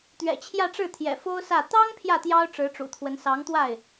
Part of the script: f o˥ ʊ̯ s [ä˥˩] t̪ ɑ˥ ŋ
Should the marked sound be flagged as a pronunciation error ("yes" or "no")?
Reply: no